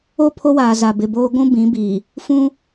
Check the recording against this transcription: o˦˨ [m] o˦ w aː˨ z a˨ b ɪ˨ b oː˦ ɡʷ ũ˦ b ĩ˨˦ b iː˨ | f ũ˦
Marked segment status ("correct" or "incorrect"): incorrect